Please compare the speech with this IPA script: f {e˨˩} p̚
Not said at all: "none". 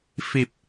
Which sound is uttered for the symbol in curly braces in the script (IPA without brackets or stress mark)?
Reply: i˨˩